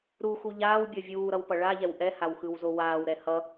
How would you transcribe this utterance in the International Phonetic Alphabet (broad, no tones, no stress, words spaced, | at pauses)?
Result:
ɾuxu ʎaːwbʲʌ vʲuːɾʌwpʌ ɭaʎɛw ʔɛhawxɯwzo waːwɾɛ hʌ